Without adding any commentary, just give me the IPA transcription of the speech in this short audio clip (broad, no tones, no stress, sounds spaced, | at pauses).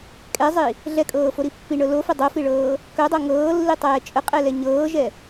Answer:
kʼ ɛ zˤ i | ɮ ɛ kʼ ɤː f o ɾ i pː i ɳ ɤ l o f ə dˤ o f i ɭ ɤː | k œ dˤ o ŋ ɤː lː i tˤ ɛː t͡ʃʼ ə qʼ ɛ l ɛ ɲ ɤː ʒ ɛ